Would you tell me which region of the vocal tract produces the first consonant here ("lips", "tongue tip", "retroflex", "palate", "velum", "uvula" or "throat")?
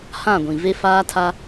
throat